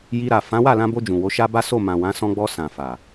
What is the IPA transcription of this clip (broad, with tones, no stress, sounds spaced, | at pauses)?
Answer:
j i˧ ɾ a˨ f ã˨˦ w a˦˨ l ã˧ b o˧ d͡ʒ ũ˨ w o˨˦ ʃ a˦ b a˦ s o˦˨ m ã˨ w ã˨˦ s ɔ̃˧ ɡ͡b ɔ˧ s ã˨ f a˨